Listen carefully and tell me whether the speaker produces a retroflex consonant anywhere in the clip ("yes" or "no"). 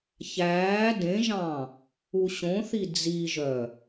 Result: no